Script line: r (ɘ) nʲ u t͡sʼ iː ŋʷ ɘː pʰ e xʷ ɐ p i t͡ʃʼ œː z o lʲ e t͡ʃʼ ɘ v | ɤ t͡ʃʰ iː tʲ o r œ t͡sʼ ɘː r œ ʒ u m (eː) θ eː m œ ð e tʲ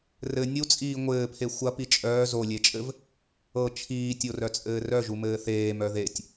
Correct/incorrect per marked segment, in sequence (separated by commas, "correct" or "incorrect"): correct, incorrect